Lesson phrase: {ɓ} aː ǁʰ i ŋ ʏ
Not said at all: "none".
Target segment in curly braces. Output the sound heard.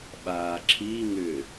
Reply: ɓ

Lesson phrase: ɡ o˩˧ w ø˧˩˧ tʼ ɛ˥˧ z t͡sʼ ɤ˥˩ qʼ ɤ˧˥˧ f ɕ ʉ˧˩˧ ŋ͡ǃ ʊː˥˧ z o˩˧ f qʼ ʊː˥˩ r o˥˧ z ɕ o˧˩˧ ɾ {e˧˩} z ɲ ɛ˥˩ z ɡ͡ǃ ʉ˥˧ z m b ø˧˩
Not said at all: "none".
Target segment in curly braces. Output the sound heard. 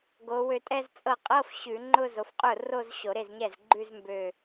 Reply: e˥˩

